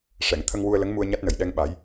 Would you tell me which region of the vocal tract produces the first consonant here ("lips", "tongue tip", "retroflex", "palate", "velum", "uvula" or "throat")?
retroflex